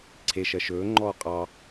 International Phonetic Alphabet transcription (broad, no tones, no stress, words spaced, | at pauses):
ǀʰe ʃɜʃɵː ŋ͡ǃɔːqʼɑ